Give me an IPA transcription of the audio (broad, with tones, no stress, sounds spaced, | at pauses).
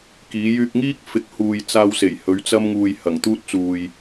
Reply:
k iː˨˥ j yː˧ k̚ ŋ iː˥ k̚ f ɪ˨˥ k̚ h uː˧ j t͡s aː˧ w s e˨˩ j h ɵ˨˥ ɥ t͡s ɐ˥ m ŋ uː˨ j h ɐ˨˩ ŋ t̪ uː˥ t̚ t͡s uː˨ j